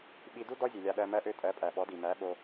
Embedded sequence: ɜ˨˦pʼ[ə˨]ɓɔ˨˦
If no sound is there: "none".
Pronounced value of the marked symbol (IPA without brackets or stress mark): æ˨